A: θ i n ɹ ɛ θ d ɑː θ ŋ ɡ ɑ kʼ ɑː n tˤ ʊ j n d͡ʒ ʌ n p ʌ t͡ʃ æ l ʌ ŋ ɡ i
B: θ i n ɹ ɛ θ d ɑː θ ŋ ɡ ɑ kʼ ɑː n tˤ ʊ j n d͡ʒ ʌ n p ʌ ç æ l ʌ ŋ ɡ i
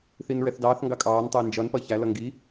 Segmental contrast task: B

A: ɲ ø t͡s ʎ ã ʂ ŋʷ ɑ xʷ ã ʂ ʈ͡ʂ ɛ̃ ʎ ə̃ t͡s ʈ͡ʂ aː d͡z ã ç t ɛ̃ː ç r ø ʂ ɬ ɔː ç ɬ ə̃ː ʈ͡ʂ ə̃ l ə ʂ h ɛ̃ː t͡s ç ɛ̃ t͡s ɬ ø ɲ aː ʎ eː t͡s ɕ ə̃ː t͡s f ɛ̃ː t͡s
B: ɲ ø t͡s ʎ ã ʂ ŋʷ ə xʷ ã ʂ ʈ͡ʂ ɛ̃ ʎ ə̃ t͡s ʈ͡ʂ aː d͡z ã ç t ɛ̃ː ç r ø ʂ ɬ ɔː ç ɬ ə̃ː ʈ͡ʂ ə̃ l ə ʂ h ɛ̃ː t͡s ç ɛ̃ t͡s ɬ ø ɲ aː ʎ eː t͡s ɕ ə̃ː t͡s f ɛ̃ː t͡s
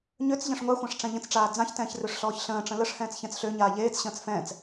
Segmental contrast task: A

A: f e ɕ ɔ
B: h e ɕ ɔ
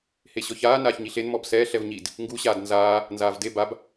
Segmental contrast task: B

